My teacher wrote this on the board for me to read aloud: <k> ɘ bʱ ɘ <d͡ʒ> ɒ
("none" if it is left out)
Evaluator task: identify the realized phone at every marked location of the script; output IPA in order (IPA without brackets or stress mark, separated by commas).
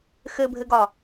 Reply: x, ɡ